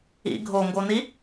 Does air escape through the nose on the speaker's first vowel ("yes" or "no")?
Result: no